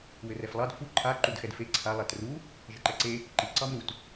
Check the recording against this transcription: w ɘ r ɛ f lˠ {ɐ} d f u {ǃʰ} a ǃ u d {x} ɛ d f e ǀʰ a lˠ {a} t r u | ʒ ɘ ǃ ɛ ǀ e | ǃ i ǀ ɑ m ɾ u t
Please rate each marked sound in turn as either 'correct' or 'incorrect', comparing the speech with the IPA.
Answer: incorrect: ɑ, correct, correct, correct

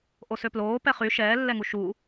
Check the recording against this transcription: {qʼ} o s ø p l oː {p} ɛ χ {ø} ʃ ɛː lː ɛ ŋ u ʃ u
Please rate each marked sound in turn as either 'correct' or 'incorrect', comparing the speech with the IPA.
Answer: incorrect: ʔ, correct, incorrect: y

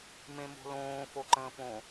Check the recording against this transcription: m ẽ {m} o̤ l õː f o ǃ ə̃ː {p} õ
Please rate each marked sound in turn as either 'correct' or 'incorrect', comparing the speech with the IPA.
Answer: correct, correct

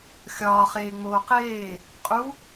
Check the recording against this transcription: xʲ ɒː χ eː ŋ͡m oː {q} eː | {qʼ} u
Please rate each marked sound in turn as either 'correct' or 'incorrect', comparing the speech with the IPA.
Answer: correct, correct

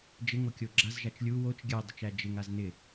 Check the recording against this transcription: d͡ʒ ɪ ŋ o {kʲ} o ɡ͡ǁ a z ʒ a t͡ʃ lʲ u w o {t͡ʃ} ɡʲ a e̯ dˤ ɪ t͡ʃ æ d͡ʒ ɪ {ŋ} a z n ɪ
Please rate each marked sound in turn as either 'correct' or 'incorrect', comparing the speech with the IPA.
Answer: correct, correct, correct

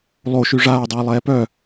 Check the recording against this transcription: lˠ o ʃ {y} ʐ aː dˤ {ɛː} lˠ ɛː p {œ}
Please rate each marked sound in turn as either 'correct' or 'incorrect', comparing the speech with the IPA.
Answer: correct, correct, correct

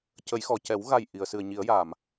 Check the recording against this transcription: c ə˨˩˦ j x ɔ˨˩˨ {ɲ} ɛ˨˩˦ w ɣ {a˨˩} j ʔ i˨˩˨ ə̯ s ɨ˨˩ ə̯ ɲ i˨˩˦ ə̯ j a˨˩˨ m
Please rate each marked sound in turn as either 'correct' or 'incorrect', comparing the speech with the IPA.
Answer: incorrect: c, correct

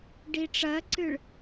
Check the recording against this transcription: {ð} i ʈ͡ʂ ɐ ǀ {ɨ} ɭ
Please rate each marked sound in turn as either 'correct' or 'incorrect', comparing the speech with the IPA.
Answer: incorrect: ɖ, correct

